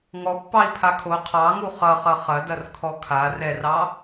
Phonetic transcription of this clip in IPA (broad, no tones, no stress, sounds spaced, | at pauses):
ŋ ɔ pː ɑ i̯ pʰ a kʰ o qʰ ɑ ŋ u χ ʌ χ ʌ χ ɐ d ɐ r kʰ ɔ kʰ a r ɛ r ɑ